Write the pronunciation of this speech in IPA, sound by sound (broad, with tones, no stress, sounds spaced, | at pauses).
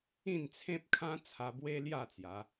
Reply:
ĩ˥˧ n t͡sʰ ẽ˦ p̚ kʰ ã˦ t͡sʰ a˧ b w e˦ l j a˥˧ t͡s j a˨˦